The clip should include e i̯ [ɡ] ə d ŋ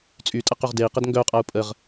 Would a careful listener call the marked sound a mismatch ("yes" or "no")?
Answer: yes